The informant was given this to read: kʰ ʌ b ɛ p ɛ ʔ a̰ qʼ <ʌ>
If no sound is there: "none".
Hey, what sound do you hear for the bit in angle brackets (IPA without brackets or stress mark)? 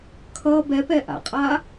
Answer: a